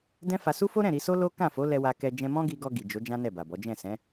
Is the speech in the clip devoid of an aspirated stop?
yes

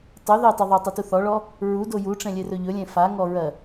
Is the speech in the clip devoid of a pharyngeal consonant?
yes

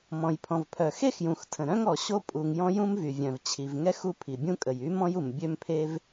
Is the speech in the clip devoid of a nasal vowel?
no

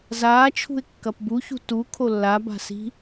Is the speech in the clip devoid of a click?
yes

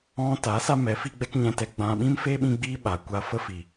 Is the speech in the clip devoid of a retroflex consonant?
yes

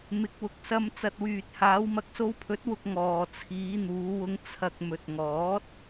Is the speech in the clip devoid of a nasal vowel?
yes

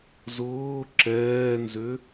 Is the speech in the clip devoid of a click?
no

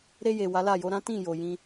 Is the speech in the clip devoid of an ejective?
yes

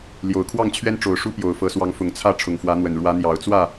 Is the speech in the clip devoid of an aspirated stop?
no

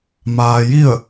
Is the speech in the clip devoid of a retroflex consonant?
yes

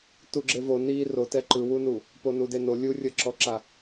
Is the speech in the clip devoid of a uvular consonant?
yes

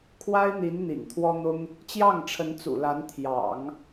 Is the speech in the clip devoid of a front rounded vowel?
yes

